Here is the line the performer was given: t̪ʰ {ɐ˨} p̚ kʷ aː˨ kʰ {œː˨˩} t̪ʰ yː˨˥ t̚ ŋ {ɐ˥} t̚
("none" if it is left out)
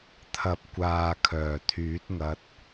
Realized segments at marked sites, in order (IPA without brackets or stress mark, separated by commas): ɐ˨, œː˨˩, ɐ˧